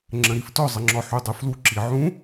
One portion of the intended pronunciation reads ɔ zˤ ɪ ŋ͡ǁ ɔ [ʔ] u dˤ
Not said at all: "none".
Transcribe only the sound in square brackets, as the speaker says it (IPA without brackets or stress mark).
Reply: ħ